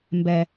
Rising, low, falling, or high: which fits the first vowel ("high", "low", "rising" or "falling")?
low